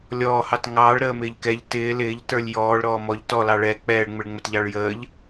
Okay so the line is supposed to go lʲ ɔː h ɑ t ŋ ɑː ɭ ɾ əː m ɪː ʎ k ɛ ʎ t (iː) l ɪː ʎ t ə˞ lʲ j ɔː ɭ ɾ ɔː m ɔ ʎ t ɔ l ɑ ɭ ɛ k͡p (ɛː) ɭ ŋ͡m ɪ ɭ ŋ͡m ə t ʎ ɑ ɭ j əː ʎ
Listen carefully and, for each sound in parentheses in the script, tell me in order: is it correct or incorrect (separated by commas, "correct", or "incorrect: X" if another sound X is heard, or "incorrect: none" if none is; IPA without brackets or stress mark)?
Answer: incorrect: ɪː, correct